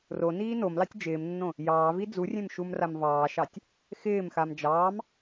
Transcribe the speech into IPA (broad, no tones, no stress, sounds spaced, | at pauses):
r o n iː n o m l ɑ tʲ d͡ʒ ɪː m nː õ | j ɑː v i d͡z u rʲ ẽ m ʃ u m r a m v ɑː ʃ ɑ tʲ | x ɪː m x a m d͡ʒ ɑː m